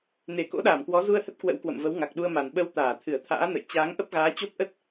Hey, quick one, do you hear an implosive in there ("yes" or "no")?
yes